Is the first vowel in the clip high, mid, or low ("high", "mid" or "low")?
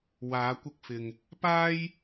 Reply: low